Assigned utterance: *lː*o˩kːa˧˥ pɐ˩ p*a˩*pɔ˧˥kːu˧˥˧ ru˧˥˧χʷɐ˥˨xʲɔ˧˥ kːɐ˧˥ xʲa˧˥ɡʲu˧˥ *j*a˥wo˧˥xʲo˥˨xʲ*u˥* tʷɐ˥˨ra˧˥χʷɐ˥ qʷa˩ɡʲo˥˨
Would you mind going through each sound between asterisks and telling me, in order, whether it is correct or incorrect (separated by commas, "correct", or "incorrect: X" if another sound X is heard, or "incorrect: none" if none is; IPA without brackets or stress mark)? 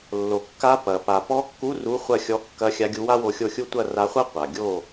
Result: correct, correct, incorrect: w, correct